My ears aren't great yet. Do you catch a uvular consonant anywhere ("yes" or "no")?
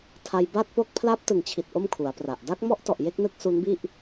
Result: no